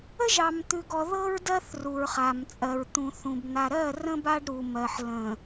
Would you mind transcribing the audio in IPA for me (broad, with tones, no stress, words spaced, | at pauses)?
ə˦ʒɑ˨m t̪ʉ˨ɡɔ˨ ðɤ˦ɹdɜ˦θ ru˨ɹχa˨mt͡sʼɜ˨ɹ t̪ũ˨θũ˨b n̪a˨ɾɜ˦˨rə̃˦ ba˦ɖɾu˨mɜ˨ħ lə̃˨